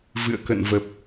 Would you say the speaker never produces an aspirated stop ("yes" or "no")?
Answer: yes